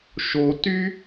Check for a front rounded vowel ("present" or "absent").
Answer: present